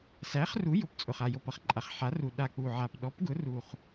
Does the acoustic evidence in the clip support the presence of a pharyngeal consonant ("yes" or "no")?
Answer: yes